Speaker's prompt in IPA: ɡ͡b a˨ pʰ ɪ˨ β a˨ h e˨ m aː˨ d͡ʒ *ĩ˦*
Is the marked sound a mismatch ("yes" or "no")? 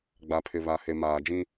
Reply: no